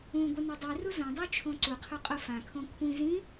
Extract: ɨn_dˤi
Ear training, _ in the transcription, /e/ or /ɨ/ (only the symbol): ɨ